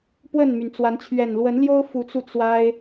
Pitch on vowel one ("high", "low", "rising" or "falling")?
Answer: falling